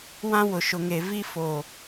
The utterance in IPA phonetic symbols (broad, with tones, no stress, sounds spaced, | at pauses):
w ã˦ w ʊ˨ ʃ ʊ˨ ŋ e˨ v i˦ f oː˨